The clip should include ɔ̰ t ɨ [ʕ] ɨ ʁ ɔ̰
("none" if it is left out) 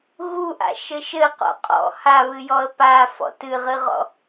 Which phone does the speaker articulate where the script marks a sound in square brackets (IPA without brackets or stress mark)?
ʁ